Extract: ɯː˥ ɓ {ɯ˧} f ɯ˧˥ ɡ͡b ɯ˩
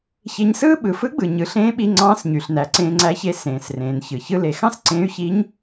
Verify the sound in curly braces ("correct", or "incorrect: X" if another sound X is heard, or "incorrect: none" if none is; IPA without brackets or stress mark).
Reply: incorrect: ɯ˩